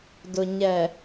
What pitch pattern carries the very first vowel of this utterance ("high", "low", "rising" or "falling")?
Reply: low